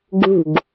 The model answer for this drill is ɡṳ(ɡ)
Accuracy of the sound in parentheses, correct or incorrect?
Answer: correct